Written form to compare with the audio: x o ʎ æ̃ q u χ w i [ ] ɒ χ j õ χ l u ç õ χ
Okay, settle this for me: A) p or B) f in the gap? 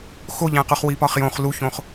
A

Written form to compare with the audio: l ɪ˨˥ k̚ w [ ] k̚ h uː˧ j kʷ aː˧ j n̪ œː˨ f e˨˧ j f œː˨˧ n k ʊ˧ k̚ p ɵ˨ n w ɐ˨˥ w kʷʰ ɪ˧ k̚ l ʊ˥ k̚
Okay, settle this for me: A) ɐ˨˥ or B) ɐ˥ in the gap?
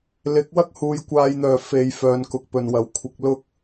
B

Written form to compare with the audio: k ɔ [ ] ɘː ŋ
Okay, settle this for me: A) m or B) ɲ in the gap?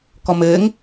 A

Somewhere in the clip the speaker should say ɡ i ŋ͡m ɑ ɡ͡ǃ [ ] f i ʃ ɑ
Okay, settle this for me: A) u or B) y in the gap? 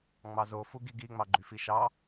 B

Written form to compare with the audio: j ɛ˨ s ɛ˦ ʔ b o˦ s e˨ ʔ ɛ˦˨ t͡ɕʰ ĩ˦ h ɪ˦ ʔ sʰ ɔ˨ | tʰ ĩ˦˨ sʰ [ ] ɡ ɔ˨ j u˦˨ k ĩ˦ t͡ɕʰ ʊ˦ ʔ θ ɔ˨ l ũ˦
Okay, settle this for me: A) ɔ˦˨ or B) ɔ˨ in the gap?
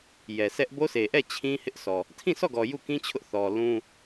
A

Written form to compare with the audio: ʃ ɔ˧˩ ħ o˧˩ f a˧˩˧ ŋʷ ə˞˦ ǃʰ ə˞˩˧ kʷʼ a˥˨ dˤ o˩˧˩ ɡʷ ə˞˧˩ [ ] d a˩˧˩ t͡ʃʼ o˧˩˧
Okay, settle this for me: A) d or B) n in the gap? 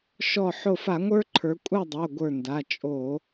B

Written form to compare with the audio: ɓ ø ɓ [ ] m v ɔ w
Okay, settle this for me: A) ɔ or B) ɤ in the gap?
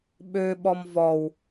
A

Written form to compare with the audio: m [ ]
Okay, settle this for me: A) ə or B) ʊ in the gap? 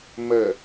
A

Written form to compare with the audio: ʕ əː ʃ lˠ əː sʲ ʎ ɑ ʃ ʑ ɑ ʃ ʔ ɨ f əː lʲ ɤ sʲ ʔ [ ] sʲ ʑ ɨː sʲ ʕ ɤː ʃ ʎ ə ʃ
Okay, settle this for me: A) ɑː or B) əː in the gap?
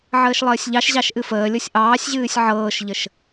A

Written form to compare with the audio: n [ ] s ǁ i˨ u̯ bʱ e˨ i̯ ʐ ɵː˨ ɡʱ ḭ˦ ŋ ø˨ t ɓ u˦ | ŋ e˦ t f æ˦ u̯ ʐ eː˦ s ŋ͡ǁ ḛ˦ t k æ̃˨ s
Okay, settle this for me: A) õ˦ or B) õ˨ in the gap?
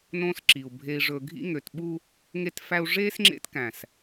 A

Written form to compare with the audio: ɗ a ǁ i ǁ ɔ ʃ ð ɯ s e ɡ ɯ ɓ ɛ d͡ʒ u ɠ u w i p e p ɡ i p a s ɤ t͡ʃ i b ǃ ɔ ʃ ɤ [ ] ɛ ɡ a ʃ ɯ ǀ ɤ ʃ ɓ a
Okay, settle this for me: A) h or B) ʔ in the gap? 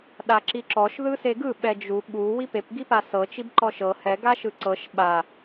A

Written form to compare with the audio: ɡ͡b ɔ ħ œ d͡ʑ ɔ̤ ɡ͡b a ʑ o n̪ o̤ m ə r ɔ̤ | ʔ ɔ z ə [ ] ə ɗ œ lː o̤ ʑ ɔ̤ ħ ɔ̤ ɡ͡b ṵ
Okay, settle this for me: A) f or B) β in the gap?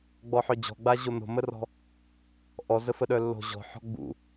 A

